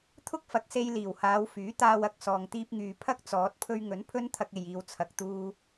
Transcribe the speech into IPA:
t̪ʰʊ˥k̚fɐ˨k̚se˧jliː˨˩w haː˨˧wfyː˨˥t̪aː˧wɐ˨k̚ sɔː˨ŋt̪iː˧p̚ŋyː˨ pʰɐ˥k̚ t͡sɔː˨˥t̚ pʰɵ˧ɥŋɵ˨˥n pʰɵ˥nt̪ʰɐ˧k̚e˨jiː˨w t͡sʰɐ˨k̚t̪uː˧

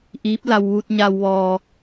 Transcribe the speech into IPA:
ʔiː˧˥p̚la˧w ʋu˧t̚ɲa˧w ʋɔː˧

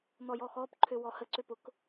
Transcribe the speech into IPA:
n̪ɔjɔxɔːp ǃʰøwɔhə ǀøpʊk

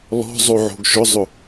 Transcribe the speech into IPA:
lɔ̤ zˤoʕo̤ɡʃʊzˤʊ

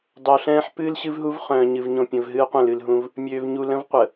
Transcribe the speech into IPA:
dˤo˨ɬɛ̃ː˦ħ pɨː˦lɕɨ˦vɦu˦v χœ̃ː˨ɲɨ˨v ɲõ˨pʲə̃˨vɦɨː˦qʷə̃ː˨l ɨ˨lɦũ˦v | mʲøː˨v ɲu˨lə̃˦v qʷə˨

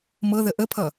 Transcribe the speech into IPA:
mɤðə ʔəpʰʌ

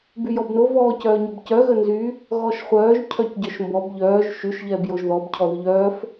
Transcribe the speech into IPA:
byjɔbno vɔːcœːɲɔbcœ ɣənzy | ɣɔʃχʷœːʒ cʰœcɟœʃmbɔb ʎœːʒ ʃyʃ ʎɛːbjoʒðɔb cʰɔðyʎœːf

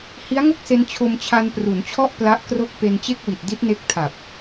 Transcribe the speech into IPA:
hi˦˥a̯ŋo˥˩k̚se˧n t͡ɕʰo˧m t͡ɕʰa˧npru˩˦nt͡ɕʰɔ˥˩ʔ pla˦˥ʔkro˥˩k̚ pe˧nt͡ɕe˥˩k̚wi˨˩t̚ di˦˥t̚ne˦˥k̚ tʰa˨˩p̚

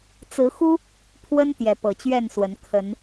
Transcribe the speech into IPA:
t͡sɹ̩˨˦xu˦ | pʰwə˦n t̪jɛ˨˦pɤ˨˩t͡ɕɥɛ˥˨nswə˨˦n kʰə˨˦n

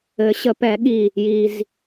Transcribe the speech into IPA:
ɘ˨˩˦ɕə˨˩˦pɛ˨˩˦ɠi˧˩ | ji˩z

